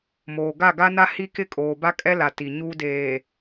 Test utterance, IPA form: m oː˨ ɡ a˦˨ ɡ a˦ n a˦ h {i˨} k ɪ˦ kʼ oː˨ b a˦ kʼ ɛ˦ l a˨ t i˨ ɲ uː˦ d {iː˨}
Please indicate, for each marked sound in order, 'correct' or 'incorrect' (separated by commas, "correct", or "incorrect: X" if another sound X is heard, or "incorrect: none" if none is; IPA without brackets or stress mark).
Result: incorrect: i˦, incorrect: eː˨